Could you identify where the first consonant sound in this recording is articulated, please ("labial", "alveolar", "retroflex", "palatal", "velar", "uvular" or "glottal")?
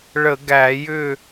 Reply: retroflex